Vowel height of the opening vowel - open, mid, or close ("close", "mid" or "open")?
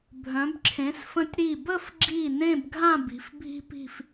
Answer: mid